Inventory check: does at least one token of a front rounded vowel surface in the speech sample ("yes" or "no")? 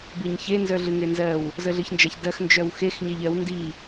yes